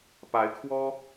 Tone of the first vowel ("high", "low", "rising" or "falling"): rising